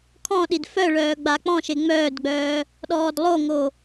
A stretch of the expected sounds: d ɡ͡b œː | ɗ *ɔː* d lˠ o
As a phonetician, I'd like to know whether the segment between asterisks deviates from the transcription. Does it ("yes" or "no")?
no